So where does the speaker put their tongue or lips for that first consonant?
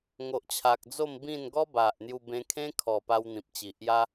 velum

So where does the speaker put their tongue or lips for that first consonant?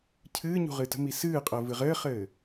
palate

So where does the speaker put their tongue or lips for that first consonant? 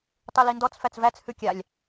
tongue tip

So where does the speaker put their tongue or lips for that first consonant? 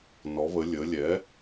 tongue tip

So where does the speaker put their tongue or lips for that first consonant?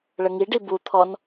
retroflex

